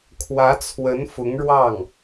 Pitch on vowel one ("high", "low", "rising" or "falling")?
rising